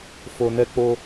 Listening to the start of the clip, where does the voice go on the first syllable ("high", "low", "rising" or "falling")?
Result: low